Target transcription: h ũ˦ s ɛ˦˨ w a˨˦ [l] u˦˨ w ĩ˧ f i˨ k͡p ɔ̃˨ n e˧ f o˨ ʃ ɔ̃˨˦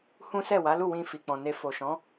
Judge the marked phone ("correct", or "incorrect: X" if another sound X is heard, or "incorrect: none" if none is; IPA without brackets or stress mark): correct